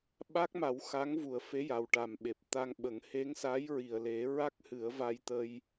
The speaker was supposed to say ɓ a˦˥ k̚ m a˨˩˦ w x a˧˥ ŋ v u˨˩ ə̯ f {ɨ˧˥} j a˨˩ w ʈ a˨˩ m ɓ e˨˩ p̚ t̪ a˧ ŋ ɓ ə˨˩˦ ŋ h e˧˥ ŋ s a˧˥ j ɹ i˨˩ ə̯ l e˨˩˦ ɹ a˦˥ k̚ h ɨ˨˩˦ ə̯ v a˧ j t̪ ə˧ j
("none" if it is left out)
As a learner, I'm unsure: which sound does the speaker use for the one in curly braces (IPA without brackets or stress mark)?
e˧˥